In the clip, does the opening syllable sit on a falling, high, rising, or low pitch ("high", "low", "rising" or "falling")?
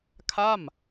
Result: falling